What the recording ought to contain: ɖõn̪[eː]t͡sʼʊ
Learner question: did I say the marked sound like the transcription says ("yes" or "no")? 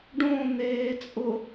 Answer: yes